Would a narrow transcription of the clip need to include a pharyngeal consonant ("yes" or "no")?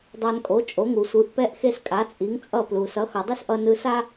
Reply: no